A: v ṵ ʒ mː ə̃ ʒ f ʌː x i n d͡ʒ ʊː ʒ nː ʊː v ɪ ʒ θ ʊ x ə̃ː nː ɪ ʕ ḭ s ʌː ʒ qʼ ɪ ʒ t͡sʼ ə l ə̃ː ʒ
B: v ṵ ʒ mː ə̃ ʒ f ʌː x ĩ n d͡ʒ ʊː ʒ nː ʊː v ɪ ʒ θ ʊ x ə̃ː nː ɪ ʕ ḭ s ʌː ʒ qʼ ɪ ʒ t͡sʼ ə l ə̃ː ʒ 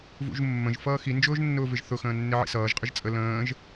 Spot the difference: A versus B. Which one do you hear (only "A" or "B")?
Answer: A